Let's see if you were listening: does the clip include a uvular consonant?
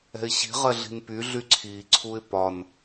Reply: yes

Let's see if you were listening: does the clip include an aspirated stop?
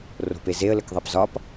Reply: no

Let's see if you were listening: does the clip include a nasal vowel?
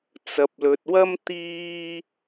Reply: no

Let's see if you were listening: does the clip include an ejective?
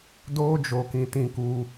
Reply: no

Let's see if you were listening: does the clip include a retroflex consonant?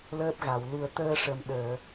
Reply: yes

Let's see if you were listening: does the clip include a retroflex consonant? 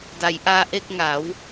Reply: no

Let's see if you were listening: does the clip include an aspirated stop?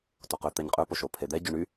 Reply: yes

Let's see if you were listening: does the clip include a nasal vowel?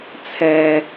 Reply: no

